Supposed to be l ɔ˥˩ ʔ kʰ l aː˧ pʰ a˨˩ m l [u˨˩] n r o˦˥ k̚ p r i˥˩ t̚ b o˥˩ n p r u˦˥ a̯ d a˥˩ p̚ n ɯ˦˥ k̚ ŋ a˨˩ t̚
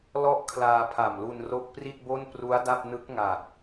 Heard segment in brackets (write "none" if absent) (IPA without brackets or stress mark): u˧